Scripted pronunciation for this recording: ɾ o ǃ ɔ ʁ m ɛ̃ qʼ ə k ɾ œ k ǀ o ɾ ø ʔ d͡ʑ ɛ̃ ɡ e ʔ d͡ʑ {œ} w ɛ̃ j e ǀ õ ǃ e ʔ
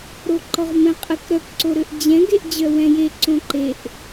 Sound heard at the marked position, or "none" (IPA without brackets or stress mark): œ